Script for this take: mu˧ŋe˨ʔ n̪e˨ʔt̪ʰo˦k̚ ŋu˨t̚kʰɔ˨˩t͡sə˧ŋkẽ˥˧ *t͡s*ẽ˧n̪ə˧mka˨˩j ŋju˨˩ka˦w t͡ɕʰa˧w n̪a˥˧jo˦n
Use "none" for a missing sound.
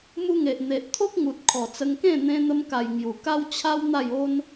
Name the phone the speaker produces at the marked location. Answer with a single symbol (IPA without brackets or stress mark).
n̪